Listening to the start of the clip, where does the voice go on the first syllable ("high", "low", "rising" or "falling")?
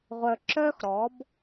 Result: low